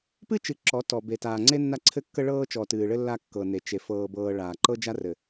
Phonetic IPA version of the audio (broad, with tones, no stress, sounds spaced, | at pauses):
p ɨ˦ t͡ʃ ɨ˨ ǁ ɔ˨˦ t ɔ˨ b e˨ t aː˨ ŋ͡ǀ e˦ nː a˦ ǀʰ ɘ˦ kː ə˦ ɭ ɤː˦ t͡ʃ ɔ˨ t ɨː˨ ɭ ɘ˦ lː a˦ kː ɤ˨ n e˨ t͡ʃ e˨ f ɤː˨ b ɤː˨ ɭ aː˨ ǃ ɤ˦ d͡ʒ a˦ r ɘ˨